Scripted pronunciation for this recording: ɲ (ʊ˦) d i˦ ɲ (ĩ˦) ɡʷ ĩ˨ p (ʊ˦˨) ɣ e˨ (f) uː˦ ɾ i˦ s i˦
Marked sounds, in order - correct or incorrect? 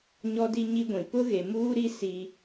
incorrect: ɔ˦, incorrect: i˦, incorrect: ʊ˦, incorrect: m

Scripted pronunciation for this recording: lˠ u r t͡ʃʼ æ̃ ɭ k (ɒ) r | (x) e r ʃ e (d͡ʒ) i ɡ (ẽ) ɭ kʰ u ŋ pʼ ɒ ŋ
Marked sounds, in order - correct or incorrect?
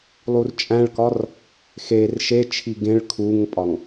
correct, correct, incorrect: t͡ʃʰ, correct

